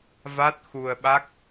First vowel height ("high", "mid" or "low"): low